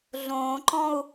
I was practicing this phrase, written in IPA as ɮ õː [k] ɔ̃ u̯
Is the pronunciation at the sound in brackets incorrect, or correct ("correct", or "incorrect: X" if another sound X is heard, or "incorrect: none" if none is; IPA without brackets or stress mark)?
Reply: incorrect: ǃ